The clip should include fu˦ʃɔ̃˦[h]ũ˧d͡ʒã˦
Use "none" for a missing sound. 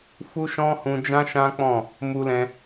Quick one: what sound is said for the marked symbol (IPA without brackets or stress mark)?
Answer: h